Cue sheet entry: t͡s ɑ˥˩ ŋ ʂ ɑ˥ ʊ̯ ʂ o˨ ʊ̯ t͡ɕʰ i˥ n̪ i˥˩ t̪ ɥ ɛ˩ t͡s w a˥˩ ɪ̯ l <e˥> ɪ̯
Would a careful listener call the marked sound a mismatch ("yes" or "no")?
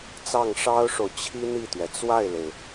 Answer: yes